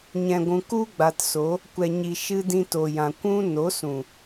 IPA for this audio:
ɲ ɛ̃˨ ɡʷ ũ˨ k u˧ ɡ͡b a˨ t s o˨˦ | kʷ ɛ˨ ɲ i˨ ʃ ɨ˧ d ĩ˧ t o˨ j ã˨ kʷ ũ˦ n o˨˦ s ũ˨

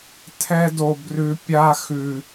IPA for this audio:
tʰ ɛ˦ d o˦ b r ʉ˦ pʲ a˦ x ʉ˦

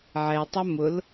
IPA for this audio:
ʕ ɛ tˤ ɐ m ʊ l

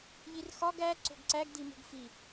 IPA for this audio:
ʎ i r x ɒ ɡ æ ǀ o̤ ɡ ǀ æ ɡ d i m ṳ ɡ f i

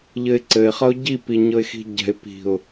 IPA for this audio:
ʎ ɘ ɪ̯ ǀ ɘ ɪ̯ χ ʌ ʊ̯ ɟ i p i ɲ ɤ ɪ̯ x i̤ ɟ ɛ̤ ɪ̯ p i̤ ʊ̯

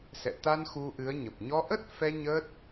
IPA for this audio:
s ɛ̰˧˨ t̪ a˧ n x u˧ ʔ ɨ˨˦ ə̯ ɲ ə˨˩ p̚ ɲ ɔ˧ ʔ ə˦˥ t̚ f ɛ˧ ɲ ə˦˥ t̚

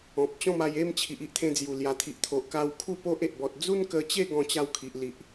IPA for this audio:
ɔ̃˨ p̚ t͡ɕ ɔ̃˥˧ m a˧ j e˥˧ m t͡ɕʰ i˨ ʔ i˦ ʔ t̪ʰ ẽ˧ d͡z j u˨˩ l j a˨˩ t̪ʰ i˨ ʔ t̪ʰ o˨ ʔ k a˧ w kʰ u˥˧ p o˦ ʔ e˨ ʔ b ɔ˨ t̚ d͡z u˦ n k ə˧ t͡ɕ e˥˧ ɡ ɔ̃˥˧ t͡ɕ a˦ w kʰ i˨ ʔ l i˨ ʔ

